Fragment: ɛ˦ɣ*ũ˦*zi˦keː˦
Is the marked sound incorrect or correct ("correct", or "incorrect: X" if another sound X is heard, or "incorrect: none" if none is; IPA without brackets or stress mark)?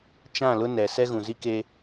incorrect: ũ˨